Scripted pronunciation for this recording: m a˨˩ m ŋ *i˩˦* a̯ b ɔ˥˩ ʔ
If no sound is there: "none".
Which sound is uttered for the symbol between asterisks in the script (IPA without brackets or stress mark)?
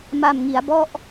i˩˦